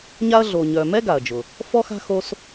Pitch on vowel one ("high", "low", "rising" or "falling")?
high